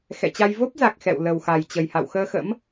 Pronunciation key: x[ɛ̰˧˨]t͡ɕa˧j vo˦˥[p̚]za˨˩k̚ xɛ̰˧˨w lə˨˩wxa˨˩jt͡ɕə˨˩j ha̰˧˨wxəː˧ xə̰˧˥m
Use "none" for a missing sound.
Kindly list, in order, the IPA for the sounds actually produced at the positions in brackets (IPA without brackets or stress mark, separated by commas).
ɛ̰˧˨, p̚